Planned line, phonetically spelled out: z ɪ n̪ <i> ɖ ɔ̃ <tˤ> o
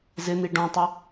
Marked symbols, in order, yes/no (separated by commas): yes, yes